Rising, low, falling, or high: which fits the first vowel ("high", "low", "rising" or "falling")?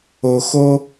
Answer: low